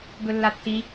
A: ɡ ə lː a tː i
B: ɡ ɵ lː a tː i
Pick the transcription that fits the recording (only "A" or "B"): B